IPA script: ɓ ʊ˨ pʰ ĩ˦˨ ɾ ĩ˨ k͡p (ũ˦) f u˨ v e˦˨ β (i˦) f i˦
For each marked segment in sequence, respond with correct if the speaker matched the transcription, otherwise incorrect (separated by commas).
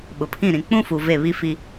correct, correct